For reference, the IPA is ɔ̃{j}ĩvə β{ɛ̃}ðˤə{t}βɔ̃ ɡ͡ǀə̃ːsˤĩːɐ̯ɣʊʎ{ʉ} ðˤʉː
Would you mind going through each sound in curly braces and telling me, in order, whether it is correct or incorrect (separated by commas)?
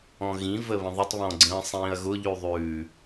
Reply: incorrect, incorrect, incorrect, correct